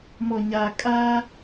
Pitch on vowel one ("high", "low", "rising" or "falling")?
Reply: low